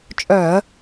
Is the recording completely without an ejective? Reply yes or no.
no